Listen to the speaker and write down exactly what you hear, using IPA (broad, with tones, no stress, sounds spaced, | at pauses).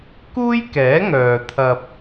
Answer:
k uː˥ j k ɛː˨˥ ŋ œː˨ t̪ʰ ɐ˧ p̚